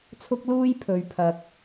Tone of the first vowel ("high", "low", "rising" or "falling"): high